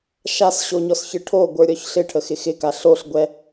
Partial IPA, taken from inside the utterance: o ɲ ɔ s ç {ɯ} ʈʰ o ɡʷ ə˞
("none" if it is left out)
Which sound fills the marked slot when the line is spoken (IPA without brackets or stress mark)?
ɯ